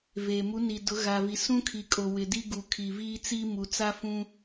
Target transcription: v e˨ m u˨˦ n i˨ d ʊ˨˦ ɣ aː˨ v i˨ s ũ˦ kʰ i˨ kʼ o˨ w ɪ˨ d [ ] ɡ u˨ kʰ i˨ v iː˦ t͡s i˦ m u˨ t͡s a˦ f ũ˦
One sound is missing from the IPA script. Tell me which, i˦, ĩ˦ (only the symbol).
i˦